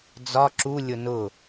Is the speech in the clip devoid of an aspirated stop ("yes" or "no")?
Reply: yes